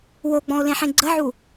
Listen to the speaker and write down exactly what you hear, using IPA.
w o ɡ͡b ɔ̃ ʊ̯ l ẽ ħ ẽ ɡ͡ǀ ə ʕ u

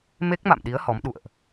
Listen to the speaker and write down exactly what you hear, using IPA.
m e˦˥ k̚ m a̰˧˨ m ɗ i˨˦ ə̯ h ɔ˨˦ m ɗ ṵ˧˨ ə̯ ʔ

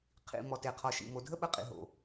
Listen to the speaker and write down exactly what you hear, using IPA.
qʰ ḭ˨ m ɔ˨ t e˨ qʰ ɔ˨ ʃ ḭ˨ m o˨ dʱ ə˦ ɓ ə˧ qʼ ḭ˨ ɦ o̰˨

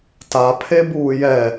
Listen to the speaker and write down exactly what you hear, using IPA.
t a pʰ e b uː j ɛ

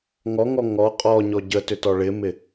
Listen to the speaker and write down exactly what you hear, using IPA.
ŋ ɔ ŋ ɔ ŋ ɔ qʼ ɔ ɲ ɔ ɟ ə t ʏ t ɔ ɭ ɪ m ɪ

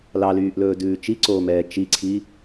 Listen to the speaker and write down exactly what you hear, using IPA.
l ɑ l yː ʔ l ɵː d ʉː t͡ʃ i ǀ oː m ɛː t͡ʃ i ǀʰ i

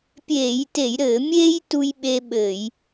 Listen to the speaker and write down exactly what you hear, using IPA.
pʲ eː˧˩˧ j t e˧˩˧ j ɾ ɘː˧˩˧ mʲ eː˥ j t u˧ j ɓ e˧ ɓ ɘ˧˩˧ j

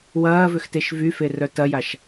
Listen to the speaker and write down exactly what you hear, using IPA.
w ɐː v ʏ x t e ʃ v y f e r œ t ɐ j a ʃ

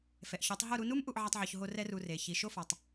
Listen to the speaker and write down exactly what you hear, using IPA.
f ɛ˨ ʔ ç ɔ˨˦ tˤ ɦ o˦˨ ɾ u˧ n u˦ m ʔ u˧ ʔ ʕ a˧ tˤ ʕ ɔ˨ ç ɦ o˧ r ɛ˦ r u˧ r e˨ ç i˨ ʃ o˦ f ɔ˨ tˤ

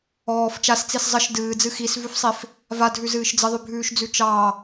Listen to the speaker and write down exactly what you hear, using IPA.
ɔː f t͡ʃ a s t͡s i s zˤ ə ʃ d ɨː d͡z ɨ x i s v ʉ f sˤ i f | v a dʱ ʉ z ɨː ʃ d͡z ə ðˤ ʉ bʱ ʉː ʃ d͡z ʉ t͡ʃ ɑ

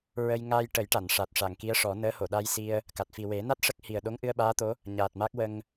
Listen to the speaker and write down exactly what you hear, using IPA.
ɹ ə˧ j ŋ aː˧ j ʈ ə˨˩˦ j ʈ a˨˩˨ n ʂ a˨˩ t̚ ʂ a˨˩˨ ŋ k i˧˥ ə̯ ʂ ɔ˨˩˦ n əː˧˥ h o˨˩˨ ɗ a˧ j s i˧ ə̯ | k a˨˩ t̚ f i˨˩ w e˨˩˦ n a˦˥ t̚ ʂ ə˦˥ k̚ h i˨˩ ə̯ ɗ o˧˥ ŋ ʔ ɨ˧ ə̯ ɓ aː˧˥ t̪ o˧˥ | ɲ aː˨˩ t̚ m a˦˥ k̚ w ə˧ ŋ

